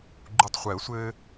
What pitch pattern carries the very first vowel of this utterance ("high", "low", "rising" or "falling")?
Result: low